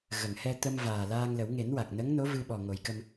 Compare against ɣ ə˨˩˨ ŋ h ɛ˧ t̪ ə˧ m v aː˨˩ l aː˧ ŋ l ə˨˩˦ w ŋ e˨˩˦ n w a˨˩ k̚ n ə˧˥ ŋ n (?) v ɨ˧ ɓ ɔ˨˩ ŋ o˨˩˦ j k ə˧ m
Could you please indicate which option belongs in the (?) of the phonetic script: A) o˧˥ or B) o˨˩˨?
A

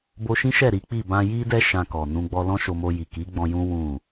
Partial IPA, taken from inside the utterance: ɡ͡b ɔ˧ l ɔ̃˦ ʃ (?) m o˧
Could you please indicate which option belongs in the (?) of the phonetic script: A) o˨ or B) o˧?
B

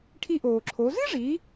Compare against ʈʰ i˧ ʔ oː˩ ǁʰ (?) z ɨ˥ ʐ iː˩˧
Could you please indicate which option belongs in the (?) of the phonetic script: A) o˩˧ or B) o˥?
A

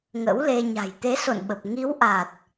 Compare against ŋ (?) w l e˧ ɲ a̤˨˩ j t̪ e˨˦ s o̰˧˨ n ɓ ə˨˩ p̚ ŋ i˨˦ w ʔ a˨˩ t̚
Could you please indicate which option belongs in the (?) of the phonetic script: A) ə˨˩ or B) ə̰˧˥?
B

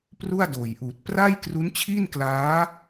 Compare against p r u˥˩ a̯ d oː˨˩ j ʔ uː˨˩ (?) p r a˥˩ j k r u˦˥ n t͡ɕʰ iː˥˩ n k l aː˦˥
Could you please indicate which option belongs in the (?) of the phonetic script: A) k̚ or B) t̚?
B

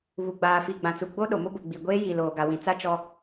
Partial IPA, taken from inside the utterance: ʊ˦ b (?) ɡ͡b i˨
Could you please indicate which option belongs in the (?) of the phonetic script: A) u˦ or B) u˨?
B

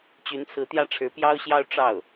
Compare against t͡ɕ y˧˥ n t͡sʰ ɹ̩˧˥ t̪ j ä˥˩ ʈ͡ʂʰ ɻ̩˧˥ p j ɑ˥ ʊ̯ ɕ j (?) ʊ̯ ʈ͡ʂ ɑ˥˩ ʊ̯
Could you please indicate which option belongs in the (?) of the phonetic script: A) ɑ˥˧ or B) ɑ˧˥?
A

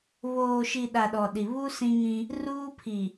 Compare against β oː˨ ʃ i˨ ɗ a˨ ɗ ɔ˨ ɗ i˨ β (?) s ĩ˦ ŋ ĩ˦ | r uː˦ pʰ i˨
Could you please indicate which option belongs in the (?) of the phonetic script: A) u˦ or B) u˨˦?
A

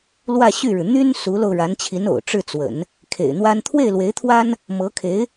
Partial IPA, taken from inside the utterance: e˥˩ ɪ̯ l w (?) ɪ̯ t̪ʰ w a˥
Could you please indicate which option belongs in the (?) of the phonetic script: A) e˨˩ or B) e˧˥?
B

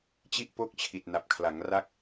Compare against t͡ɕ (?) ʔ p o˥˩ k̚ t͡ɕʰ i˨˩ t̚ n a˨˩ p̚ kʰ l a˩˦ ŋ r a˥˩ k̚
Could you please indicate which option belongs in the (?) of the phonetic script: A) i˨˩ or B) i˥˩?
B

